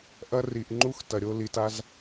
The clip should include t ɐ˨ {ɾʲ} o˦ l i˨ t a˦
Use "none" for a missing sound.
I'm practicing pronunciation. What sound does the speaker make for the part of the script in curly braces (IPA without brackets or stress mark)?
ɾʲ